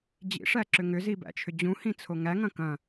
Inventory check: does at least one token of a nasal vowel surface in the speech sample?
yes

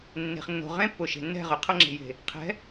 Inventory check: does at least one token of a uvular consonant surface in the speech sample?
yes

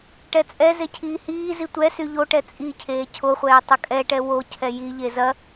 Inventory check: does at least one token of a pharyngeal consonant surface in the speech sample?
no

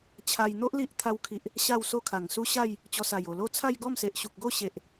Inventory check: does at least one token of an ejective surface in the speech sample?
no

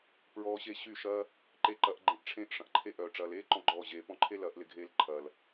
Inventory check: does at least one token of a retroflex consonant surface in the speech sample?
yes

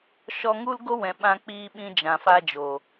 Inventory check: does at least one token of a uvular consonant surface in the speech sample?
no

